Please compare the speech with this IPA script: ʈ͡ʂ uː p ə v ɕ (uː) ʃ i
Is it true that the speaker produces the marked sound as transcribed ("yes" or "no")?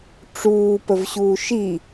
yes